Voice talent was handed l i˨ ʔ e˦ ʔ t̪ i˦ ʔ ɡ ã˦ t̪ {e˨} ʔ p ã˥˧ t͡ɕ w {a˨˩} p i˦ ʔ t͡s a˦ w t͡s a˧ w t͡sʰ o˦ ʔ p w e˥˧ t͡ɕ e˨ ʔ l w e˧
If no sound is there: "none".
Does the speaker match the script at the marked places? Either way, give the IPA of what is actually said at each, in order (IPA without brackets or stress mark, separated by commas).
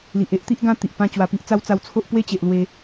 i˨, a˧